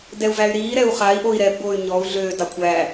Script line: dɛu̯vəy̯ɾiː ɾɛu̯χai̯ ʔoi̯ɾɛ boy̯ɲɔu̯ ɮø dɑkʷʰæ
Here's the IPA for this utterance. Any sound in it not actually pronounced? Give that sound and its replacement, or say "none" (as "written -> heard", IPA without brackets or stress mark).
ə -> æ